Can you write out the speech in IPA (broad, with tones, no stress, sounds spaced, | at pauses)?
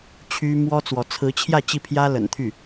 t͡ɕʰ y˥ m w ɔ˥ t͡s w ɔ˧˥ t͡sʰ ɹ̩˧˥ t͡ɕʰ j ä˥˧ t͡ɕ i˥˩ pʰ j ä˥ l ə̰˨˩ n t̪ʰ y˥˩